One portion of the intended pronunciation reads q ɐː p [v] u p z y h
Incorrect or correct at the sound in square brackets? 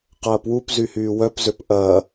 incorrect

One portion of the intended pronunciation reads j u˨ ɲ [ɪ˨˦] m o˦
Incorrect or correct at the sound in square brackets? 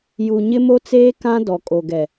incorrect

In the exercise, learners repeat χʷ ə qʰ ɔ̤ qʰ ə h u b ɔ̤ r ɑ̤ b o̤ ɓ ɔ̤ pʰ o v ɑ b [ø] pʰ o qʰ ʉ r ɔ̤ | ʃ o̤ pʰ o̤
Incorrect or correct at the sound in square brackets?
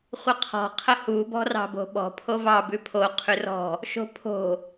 incorrect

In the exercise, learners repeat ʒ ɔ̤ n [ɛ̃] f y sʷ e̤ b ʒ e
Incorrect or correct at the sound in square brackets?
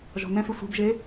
correct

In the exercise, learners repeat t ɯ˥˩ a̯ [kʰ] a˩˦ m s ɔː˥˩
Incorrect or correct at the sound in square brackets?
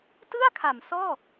correct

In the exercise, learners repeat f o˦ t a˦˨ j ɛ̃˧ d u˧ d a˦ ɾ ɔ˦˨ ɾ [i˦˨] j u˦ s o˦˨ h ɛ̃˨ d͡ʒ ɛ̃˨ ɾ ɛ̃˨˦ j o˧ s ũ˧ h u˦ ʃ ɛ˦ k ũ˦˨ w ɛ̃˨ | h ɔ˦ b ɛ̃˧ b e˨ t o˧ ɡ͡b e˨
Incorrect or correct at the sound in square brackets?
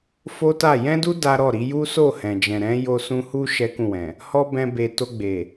incorrect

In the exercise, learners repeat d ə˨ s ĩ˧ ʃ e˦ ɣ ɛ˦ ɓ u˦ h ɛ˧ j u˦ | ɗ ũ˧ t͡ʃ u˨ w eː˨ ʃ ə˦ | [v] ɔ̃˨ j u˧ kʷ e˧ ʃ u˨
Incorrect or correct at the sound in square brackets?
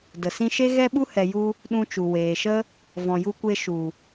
correct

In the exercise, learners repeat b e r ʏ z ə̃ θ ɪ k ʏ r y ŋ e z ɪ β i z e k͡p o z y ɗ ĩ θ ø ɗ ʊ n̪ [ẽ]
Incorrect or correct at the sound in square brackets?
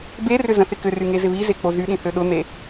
incorrect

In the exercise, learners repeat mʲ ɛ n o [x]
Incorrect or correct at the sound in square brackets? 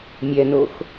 correct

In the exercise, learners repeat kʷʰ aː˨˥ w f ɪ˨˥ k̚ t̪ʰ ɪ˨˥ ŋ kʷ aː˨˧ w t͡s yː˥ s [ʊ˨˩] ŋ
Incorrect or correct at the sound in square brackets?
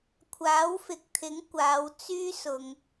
incorrect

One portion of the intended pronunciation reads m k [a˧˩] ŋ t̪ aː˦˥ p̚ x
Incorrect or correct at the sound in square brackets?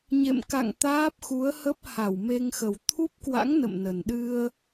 incorrect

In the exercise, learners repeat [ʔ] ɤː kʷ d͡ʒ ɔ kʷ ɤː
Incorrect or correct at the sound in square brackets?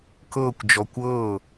incorrect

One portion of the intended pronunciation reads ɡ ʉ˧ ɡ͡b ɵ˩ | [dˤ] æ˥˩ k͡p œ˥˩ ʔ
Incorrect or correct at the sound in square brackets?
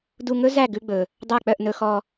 correct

